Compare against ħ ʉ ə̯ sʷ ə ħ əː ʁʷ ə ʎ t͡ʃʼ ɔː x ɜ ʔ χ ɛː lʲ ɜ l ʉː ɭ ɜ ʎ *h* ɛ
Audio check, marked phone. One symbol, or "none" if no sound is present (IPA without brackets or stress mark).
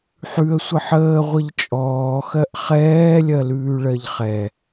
χ